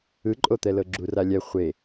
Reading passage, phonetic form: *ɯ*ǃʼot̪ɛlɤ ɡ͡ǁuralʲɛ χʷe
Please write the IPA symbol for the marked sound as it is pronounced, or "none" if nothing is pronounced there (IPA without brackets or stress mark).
ɯ